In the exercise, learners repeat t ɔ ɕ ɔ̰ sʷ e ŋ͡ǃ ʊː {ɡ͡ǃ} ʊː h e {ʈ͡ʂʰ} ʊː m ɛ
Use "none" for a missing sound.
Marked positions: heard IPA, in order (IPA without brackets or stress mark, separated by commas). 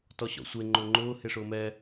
ŋ͡ǃ, ʂ